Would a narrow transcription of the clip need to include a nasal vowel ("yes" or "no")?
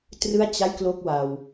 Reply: no